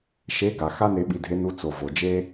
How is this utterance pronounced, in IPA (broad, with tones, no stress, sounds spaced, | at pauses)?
ʃ e˧˥ ɡ a˩ x a˥ n e˧ ɓ i˧ dʱ e˧˥ n u˧˥ t͡s o˩ v o˩ d͡ʒ e˥